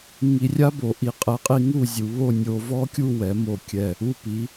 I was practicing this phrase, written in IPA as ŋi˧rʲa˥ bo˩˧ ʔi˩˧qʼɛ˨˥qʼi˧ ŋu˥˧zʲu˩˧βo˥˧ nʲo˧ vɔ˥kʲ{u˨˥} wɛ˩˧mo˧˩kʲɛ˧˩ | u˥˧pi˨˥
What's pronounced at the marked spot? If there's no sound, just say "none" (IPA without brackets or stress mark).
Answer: u˥˧